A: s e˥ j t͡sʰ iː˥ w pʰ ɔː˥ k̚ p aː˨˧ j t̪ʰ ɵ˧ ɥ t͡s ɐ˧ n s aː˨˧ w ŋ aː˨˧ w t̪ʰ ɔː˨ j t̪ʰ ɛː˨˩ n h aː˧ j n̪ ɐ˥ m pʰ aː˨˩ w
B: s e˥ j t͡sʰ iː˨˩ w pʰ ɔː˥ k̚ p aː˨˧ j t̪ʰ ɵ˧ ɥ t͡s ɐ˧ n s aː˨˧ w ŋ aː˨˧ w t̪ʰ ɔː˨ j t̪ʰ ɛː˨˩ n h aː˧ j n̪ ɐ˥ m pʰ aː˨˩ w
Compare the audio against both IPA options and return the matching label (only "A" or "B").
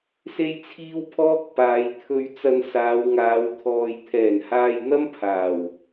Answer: A